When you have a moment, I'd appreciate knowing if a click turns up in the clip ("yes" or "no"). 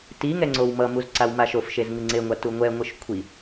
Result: yes